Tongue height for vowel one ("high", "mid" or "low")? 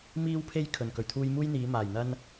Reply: high